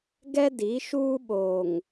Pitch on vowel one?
high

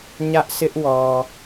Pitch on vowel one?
high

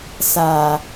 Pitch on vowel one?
low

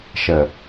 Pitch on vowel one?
low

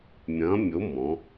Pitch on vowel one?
rising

